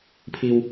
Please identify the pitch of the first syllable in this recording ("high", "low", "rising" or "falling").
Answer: low